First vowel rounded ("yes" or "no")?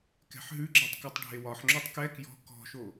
no